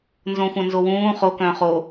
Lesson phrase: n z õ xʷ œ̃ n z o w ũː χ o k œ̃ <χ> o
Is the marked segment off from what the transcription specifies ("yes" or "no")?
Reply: no